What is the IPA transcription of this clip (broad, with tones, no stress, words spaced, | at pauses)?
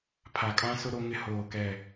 pʰa˨kʼã˦sʊ˦ ɾo˦ŋɪ˦ hoː˦˨kɛ˦˨